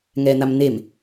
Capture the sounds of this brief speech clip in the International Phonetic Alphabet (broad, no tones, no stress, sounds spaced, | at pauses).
ŋ ɛː n̪ a m n̪ e m